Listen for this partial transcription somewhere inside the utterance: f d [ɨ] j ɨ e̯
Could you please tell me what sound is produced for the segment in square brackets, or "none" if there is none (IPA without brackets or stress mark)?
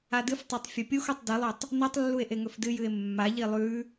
ɨ